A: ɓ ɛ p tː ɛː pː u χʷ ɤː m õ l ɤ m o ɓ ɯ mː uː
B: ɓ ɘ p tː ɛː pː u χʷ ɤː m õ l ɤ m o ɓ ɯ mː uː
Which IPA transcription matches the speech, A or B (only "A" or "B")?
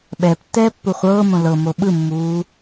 A